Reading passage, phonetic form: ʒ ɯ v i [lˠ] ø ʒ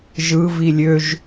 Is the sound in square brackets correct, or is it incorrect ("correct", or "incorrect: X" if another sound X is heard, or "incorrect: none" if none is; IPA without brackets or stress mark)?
incorrect: lʲ